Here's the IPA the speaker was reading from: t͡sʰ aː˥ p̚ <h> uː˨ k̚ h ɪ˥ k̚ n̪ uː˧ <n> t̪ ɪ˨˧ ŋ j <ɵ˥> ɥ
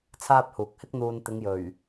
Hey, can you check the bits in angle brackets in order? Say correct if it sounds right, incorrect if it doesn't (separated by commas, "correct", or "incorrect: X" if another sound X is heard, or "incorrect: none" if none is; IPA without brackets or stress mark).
correct, correct, incorrect: ɵ˨˩